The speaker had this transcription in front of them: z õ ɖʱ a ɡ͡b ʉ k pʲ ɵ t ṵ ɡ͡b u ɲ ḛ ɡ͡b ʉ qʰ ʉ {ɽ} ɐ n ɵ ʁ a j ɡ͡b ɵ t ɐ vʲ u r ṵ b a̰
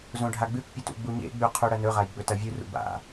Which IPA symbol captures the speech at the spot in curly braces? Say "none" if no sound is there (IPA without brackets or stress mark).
ɽ